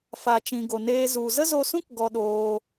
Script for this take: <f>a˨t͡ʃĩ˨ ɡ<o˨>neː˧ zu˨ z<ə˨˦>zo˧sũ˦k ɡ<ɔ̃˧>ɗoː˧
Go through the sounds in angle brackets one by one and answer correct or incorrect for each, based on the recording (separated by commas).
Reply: correct, correct, incorrect, incorrect